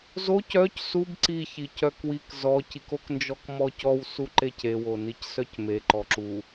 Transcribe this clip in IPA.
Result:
z o c œ c s u b ǀ i ç i c œ k w i k z ɔ c i k o k n d͡ʒ ɔ k m ɔ c ɔ w s u ǃ e c e w o n i c s œ c m e ǃ ɔ ǁ u

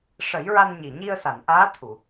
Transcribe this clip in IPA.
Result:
ʂ ə˨˩˦ j ɹ a˧ n ɲ i˨˩ ɲ i˧ ə̯ s a˨˩˨ n ʔ aː˧˥ t̪ʰ u˨˩˨

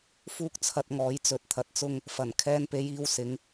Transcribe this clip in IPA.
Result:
f uː˥ k̚ t͡sʰ ɐ˧ t̚ ŋ ɔː˨˥ j t͡s ɵ˧ t̚ t̪ʰ ɐ˧ t̚ t͡s ʊ˥ ŋ | f ɐ˨˩ n kʰ ɛː˧ n p e˨˥ j iː˨˧ w s ɪ˨˥ ŋ

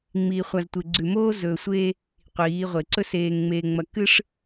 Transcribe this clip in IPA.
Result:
ŋ͡m iː˨ χʷ a˨ z tʷ e˨ ɡ͡ǀ ʉ˨ m oː˦ z ɵː˨ sʷ eː˦ | qʷ iː˨˦ ʁʷ e˨ ǀ ɵ˦ s eː˨ ŋ ŋ͡m eː˨ ŋ͡m ɐ˨ k ɨ˦ ʂ

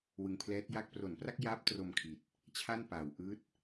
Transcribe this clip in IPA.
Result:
w ɯ˨˩ ŋ pʰ l ɛː˦˥ t̚ j a˥˩ k̚ p r o˩˦ n p r a˥˩ k̚ j aː˦˥ p̚ t r o˧ m kʰ i˨˩ t̚ | t͡ɕʰ a˥˩ n p aː˨˩ w ʔ ɯː˦˥ t̚

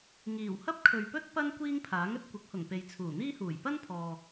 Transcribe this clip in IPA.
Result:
ŋ iː˨˩ w h ɐ˥ p̚ kʰ ɵ˨ ɥ p ɵ˥ t̚ p ɐ˥ n kʷ iː˥ ŋ pʰ aː˨˥ ŋ ɵ˧ t̚ kʷ ɪ˨˥ k̚ h ʊ˨˩ ŋ p e˨ j t͡sʰ uː˨˩ n̪ iː˥ h uː˨˩ j p ɐ˥ n pʰ ɔː˨

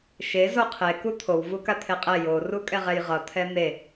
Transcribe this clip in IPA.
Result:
ʃ e z o qʰ e k u t̪ʰ o w v u k a t̪ʰ e qʼ ɛ j o r u kʼ ɛ ʁ ɛ j ʁ ʌ t̪ʰ ɛ n̪ e

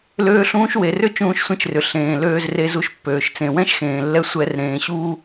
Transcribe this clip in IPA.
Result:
l øː˦ ɬ ũː˦ ʃ w e˨ r ʏ˦ t͡ʃ ũː˧ ʃ sʷ ẽ˧ t͡ʃ r ʏ˨ ɬ ẽː˨ l øː˧ z r e˧ z u˧ ʃ pː øː˨ ʃ t͡s ẽ˨ w ɛ̃˦ ʃ x ẽː˨ lː ɛ˧ sʷ ɛ˧ r ɾ ẽː˨ ɕ uː˧

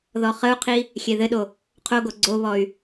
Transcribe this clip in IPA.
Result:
ð ɔ χ ə u̯ qʰ i | xʲ e ð ɘ ɗ o | qʰ o ɡ o ɡ͡ǀ o β ɔ y̯

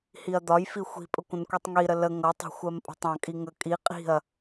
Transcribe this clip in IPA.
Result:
h i ɐ̯ d̪ ɒ j f i xʷ i̤ pʼ ə kʷ ə̃ n kʷ i tˤ ŋ i ɾ ə l ə ŋ ʌ tˤ ɑ̤ xʷ ɜ m pʼ ə̤ tˤ ɑ̃ kʼ i ŋ ə kʼ i qʼ i̤ ɐ̯

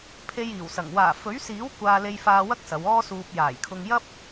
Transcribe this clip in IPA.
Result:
pʰ e˧ j iː˨˩ w s ɐ˨˩ ŋ w aː˨˩ f ɵ˨˥ ɥ s iː˨˥ w kʷ aː˧ l e˧ j f aː˧ w ɐ˥ k̚ s ɐ˨˧ w ɔː˥ s uː˧ p̚ j aː˨˩ j kʰ ʊ˧ ŋ j ɐ˥ p̚

